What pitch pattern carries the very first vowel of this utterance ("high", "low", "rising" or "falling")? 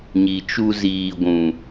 low